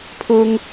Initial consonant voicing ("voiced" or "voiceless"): voiceless